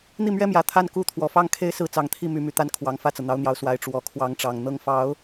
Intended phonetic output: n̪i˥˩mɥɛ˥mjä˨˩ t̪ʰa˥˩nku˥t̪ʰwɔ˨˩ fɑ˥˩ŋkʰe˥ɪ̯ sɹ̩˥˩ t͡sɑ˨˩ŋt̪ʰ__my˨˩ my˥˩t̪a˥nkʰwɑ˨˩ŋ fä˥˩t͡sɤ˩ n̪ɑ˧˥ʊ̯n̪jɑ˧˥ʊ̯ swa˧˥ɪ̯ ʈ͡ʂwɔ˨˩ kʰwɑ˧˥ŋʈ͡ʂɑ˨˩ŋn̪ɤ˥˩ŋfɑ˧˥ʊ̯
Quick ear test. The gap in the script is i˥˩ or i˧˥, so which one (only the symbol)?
i˥˩